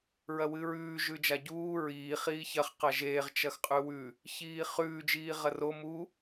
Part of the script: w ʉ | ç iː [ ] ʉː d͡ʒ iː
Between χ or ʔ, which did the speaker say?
χ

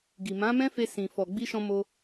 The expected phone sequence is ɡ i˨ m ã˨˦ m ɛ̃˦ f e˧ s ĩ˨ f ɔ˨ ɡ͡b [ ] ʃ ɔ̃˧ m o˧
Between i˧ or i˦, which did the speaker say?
i˧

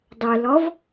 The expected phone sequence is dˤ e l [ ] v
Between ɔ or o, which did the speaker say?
ɔ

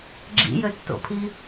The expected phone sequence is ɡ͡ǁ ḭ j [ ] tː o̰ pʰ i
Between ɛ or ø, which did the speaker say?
ø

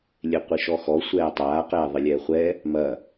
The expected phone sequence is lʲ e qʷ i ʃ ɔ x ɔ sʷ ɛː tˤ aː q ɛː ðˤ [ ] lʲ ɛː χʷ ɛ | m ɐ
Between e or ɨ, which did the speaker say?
ɨ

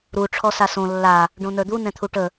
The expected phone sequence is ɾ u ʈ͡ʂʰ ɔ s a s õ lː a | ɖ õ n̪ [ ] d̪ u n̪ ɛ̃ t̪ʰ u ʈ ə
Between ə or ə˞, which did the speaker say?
ə˞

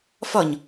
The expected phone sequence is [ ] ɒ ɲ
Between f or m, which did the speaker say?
f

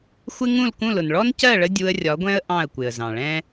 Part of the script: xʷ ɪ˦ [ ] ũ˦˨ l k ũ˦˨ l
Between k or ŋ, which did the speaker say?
ŋ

